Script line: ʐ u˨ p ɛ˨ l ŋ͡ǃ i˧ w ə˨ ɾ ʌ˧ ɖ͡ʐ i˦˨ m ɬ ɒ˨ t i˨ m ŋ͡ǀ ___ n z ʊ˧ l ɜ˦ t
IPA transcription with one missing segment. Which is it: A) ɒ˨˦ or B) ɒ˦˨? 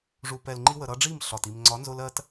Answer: A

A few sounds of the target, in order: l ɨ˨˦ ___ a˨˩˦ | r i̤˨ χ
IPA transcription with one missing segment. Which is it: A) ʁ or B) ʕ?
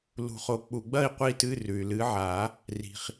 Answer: B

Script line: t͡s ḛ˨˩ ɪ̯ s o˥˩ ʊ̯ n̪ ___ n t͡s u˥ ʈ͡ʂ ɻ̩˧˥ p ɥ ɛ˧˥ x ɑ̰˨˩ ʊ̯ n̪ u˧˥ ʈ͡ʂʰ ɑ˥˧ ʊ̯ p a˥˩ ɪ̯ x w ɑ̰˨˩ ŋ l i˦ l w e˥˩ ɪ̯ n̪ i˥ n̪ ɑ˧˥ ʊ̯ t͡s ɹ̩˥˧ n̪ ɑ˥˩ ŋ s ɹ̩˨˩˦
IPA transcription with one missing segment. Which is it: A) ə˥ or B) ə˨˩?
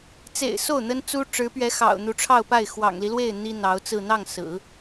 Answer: A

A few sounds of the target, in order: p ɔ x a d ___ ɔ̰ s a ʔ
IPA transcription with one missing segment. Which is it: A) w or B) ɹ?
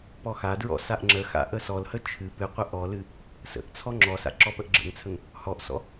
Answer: B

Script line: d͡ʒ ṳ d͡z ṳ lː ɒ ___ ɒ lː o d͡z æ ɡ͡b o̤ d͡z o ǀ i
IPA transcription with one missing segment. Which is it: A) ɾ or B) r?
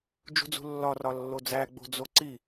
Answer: B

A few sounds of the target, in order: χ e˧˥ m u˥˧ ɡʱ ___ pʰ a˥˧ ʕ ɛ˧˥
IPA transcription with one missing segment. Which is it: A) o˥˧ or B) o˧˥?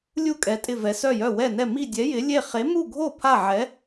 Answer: A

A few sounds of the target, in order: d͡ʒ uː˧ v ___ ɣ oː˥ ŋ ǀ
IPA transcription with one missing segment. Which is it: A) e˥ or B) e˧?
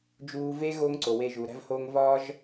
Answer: A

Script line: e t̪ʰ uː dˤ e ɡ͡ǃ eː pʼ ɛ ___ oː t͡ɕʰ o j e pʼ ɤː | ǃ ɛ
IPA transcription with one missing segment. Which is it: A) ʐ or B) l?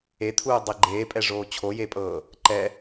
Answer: A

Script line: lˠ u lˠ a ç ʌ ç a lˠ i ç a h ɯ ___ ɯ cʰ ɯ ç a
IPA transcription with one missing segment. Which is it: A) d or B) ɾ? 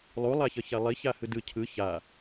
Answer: A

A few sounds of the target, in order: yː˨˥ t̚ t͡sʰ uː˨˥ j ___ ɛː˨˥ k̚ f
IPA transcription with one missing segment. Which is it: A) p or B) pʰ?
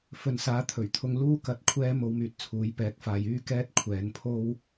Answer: A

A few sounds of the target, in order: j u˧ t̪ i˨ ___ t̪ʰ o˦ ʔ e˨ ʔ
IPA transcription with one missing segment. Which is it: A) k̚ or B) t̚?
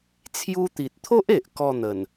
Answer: B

